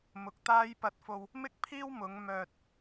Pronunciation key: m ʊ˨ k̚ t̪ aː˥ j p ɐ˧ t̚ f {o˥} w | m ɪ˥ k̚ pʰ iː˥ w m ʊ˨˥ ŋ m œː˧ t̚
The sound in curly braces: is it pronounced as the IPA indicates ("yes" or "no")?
no